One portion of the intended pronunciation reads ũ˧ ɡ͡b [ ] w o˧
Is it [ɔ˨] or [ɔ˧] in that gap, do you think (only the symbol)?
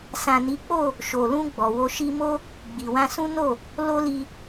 ɔ˨